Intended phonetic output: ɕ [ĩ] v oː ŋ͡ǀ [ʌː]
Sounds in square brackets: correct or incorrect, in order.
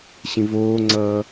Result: correct, correct

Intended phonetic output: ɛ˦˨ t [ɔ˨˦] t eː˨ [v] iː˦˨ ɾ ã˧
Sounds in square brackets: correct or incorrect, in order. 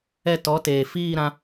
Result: correct, incorrect: f

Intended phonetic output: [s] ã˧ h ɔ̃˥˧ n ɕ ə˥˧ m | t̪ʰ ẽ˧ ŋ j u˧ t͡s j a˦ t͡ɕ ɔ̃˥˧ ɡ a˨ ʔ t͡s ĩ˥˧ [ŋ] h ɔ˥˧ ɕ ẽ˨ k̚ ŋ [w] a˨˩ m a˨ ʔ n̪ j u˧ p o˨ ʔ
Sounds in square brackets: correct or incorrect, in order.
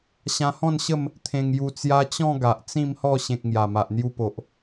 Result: incorrect: ɕ, incorrect: m, incorrect: j

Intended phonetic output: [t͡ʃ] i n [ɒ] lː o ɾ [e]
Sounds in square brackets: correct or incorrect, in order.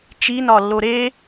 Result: correct, correct, correct

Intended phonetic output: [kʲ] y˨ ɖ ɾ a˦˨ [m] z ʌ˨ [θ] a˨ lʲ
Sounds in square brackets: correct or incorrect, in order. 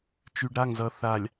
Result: incorrect: t͡ʃ, incorrect: ŋ, correct

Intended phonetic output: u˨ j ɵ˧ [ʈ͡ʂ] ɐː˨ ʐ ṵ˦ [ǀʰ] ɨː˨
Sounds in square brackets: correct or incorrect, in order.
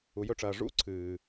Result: correct, correct

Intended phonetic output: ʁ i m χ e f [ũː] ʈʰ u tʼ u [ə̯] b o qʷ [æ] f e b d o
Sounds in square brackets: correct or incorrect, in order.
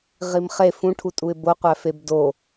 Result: incorrect: ũ, incorrect: ɪ̯, correct

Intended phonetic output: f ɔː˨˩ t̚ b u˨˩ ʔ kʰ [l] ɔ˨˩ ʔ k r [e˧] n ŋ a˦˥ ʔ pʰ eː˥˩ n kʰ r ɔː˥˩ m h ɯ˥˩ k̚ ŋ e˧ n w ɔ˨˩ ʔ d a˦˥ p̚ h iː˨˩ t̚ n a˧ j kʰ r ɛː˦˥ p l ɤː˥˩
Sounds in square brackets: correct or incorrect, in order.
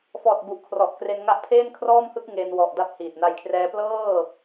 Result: incorrect: r, correct

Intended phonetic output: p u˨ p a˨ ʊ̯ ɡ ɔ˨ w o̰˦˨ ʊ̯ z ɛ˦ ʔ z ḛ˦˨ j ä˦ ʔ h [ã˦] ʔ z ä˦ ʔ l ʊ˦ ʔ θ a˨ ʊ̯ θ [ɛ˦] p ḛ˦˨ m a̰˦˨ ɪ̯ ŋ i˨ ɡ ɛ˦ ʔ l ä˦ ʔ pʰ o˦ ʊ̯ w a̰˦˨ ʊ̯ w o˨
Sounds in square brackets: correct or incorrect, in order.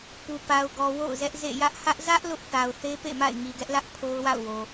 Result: incorrect: ä˦, incorrect: e˦

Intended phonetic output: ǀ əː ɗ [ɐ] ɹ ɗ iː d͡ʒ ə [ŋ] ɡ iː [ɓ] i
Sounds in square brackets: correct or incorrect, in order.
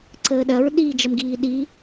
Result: correct, incorrect: m, incorrect: ɗ

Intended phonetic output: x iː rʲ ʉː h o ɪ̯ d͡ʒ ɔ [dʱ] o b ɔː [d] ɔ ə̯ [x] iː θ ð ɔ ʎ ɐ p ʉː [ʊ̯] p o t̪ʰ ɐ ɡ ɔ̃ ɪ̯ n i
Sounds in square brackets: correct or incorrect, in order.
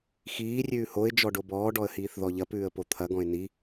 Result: incorrect: ɖ, incorrect: ɖ, incorrect: h, incorrect: ə̯

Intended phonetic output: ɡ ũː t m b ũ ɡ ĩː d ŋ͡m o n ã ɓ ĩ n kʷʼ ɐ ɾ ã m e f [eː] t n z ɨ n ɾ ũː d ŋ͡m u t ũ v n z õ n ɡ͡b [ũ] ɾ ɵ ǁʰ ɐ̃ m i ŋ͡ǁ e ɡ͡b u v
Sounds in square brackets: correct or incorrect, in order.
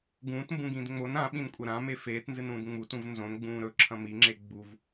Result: correct, incorrect: ũː

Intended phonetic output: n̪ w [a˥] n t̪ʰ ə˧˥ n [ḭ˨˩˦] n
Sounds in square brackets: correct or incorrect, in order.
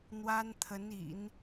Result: correct, correct

